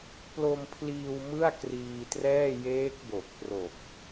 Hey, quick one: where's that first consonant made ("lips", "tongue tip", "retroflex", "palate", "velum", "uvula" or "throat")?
lips